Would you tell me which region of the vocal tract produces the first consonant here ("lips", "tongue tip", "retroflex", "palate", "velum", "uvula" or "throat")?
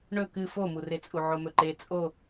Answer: retroflex